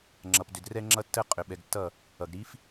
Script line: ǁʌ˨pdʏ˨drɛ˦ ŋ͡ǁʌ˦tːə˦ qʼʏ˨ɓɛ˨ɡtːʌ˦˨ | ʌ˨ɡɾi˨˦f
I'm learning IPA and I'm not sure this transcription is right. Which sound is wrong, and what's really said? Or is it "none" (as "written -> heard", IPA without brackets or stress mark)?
ǁ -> ŋ͡ǁ